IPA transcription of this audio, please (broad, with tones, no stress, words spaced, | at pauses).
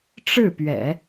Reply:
ʈ͡ʂɻ̩˥˩pɥɛ̰˨˩˦